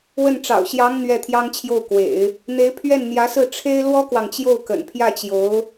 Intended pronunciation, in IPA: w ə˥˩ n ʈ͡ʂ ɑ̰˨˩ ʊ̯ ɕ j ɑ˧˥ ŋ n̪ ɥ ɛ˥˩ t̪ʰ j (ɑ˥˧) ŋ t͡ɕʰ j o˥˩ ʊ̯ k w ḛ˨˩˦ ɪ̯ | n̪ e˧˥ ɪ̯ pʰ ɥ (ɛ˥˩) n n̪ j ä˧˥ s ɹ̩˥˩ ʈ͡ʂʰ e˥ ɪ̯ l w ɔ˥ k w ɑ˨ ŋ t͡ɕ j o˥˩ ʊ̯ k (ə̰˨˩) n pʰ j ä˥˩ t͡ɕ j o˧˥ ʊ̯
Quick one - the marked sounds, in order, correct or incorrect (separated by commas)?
incorrect, correct, correct